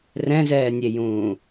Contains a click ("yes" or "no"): no